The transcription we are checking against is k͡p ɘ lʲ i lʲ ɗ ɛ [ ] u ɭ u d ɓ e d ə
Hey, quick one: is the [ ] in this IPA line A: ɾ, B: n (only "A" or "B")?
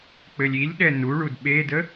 B